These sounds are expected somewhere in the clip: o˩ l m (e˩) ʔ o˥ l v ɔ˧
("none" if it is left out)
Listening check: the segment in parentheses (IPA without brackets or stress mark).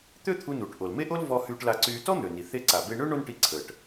e˥